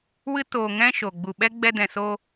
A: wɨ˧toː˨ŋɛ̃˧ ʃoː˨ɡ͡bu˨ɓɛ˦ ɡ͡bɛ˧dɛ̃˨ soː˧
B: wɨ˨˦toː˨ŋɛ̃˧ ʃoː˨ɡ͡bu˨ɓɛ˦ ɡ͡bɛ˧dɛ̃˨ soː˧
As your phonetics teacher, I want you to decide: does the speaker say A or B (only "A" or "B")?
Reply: A